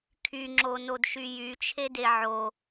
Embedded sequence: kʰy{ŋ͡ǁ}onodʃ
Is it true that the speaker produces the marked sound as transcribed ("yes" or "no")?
yes